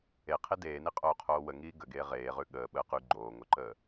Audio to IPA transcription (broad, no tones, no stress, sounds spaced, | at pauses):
e qʰ e d eː n i qʼ oː qʰ oː w ə ŋ iː ɡ ə ɡ eː ʁ eː ʁ ʉ ɠ əː ɓ əː q ʉ ɡ͡ǃ oː ŋ o ǃ əː